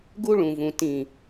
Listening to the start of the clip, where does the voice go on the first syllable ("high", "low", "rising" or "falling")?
high